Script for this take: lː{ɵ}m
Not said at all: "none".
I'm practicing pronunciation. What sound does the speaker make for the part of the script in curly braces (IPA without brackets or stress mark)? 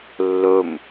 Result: ɵ